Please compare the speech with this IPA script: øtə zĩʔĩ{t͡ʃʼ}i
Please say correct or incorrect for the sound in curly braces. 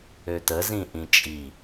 correct